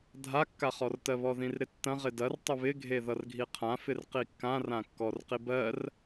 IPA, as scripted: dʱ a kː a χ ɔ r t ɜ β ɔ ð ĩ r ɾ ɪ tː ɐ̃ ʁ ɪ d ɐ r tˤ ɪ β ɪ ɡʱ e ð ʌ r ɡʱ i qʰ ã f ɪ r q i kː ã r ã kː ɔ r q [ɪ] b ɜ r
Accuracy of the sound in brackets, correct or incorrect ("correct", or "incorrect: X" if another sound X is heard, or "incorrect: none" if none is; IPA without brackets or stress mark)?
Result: incorrect: i